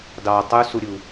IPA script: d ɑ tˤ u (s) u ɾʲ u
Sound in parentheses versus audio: correct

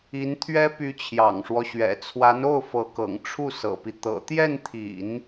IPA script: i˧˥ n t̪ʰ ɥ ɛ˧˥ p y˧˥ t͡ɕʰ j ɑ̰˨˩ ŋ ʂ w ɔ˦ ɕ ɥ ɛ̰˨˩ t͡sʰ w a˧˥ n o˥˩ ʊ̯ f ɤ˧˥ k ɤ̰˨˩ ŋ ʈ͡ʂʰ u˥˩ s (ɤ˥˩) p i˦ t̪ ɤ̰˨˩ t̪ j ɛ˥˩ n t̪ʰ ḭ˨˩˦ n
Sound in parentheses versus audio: incorrect: ɤ̰˨˩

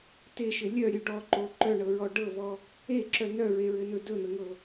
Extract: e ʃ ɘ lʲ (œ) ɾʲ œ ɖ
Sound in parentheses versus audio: correct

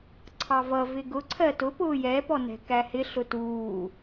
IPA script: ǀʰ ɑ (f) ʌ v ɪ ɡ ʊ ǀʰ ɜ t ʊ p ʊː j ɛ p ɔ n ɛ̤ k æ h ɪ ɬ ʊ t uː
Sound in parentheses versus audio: incorrect: v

